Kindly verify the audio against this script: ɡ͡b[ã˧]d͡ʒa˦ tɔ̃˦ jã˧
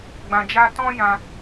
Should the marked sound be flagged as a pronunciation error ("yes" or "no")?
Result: no